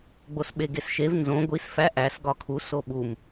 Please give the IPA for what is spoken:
ɡ͡bosɓeɡesʃev nzõ ɡʷis fæ ʔæs ɡɒkʰu soɓum

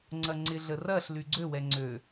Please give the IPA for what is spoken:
ŋ͡ǀɐŋ͡ǀɪ ɮərɐɬ lyɡ͡ǀø wɛŋ͡ǀø

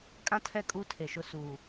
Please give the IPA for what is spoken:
kʼã˦tʰɛ˦˨kʼuː˦ tʰe˨ʃʊ˦˨ suː˨

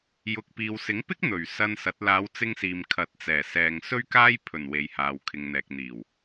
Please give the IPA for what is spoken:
jʊ˨k̚piː˨w sɪ˨˥ŋpɪ˥k̚n̪ɵ˨˩ɥ sɐ˧nsɐ˨˥t̚ laː˨˧wt͡sɪ˧ŋsiː˨m kʰɐ˨˥t̚t͡sɛː˨˩ sɛː˨ŋ sɵ˥ɥkaː˥j pʰɵ˨˩n we˨jhaː˨wkʰɪ˨ŋn̪ɛː˨k̚ n̪iː˨˩w

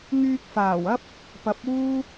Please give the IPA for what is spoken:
ŋyː˧k̚faː˨˩wɐ˥p̚ | pɐ˨˥p̚uː˥

